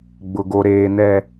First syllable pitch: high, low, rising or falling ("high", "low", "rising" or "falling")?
low